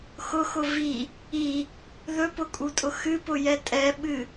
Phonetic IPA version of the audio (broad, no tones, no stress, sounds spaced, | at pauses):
x ʊ x ʊ v i | i | ð ɵ p ʊ kʼ u tʼ ʊ x ɨ p ʊ j ɛ tʼ ɛ ɓ ɨ